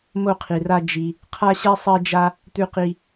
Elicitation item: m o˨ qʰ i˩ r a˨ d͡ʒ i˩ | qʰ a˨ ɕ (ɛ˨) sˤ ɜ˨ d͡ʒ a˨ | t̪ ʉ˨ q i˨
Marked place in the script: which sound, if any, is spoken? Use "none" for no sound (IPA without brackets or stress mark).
ɛ˨